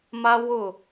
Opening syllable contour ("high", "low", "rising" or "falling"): high